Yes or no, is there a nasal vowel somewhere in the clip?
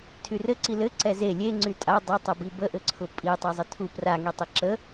no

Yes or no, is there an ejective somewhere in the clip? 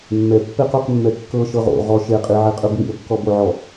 yes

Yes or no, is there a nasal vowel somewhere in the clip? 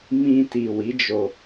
yes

